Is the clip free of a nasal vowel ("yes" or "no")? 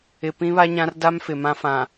no